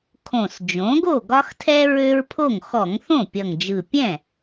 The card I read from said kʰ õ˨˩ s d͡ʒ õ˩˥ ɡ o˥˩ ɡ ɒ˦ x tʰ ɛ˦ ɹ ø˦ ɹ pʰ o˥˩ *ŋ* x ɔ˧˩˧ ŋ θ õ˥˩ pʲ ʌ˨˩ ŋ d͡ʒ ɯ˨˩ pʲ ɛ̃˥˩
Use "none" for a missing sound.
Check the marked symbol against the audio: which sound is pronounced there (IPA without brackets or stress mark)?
ŋ